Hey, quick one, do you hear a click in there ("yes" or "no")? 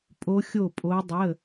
no